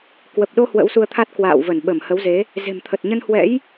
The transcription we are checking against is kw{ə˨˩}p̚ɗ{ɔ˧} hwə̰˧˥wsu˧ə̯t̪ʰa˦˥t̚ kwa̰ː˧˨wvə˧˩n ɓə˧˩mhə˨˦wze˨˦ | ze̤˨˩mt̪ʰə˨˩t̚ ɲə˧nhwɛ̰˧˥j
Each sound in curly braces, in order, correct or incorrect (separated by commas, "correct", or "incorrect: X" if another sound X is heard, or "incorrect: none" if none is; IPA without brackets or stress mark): correct, incorrect: o˧